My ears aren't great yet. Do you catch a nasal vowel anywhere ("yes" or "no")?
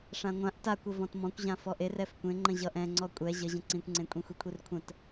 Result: yes